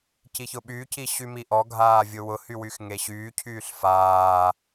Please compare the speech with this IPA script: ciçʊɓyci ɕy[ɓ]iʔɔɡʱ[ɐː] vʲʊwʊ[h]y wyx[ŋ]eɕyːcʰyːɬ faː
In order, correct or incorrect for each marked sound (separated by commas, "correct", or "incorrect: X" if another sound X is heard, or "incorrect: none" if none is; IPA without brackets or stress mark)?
incorrect: m, incorrect: aː, correct, correct